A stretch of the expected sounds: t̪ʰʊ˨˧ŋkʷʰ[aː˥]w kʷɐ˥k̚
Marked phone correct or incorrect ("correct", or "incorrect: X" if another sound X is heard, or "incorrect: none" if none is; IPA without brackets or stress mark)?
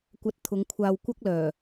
incorrect: aː˧